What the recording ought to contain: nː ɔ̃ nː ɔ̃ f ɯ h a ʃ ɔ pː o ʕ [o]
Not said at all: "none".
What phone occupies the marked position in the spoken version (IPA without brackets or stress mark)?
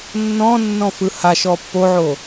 o